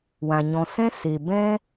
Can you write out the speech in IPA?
wã˨ɲɔ̃˨sɛ̃˦ se˨ bɛ̃˦

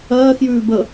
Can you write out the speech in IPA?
ɜːxjʉː bə

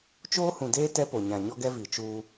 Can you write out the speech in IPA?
t͡ʃoː˦hũ˨deː˦ tɛ˦ po˨ɲã˨ ɲɔ˦ɡɛ˦ vi˨t͡ʃuː˦

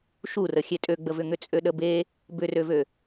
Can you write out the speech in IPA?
ʃurə xʲetʼøɡ͡bəvʏ ŋʏt͡sʼøɗəbe | bʏrøvø

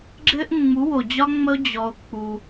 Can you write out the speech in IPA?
ɡ͡ǁɘ˦ʔ ŋ͡mu˨˦wo˨d͡ʑɒ˦ ŋ͡mə˦o̯ d͡ʑɔ˦o̯k͡pu˦

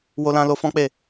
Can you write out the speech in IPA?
wo˧lã˧lo˧ fɔ̃˦k͡pe˦˨

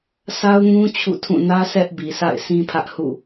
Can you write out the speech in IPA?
sa˦ʊ̯ŋũ˦ t͡ɕʰṵ˦˨tʰũ˦˨ nä˦ sɛ˦ʔbi˨sʰa̰˦˨ɪ̯ sĩ˦pʰä˦ʔhṵ˦˨

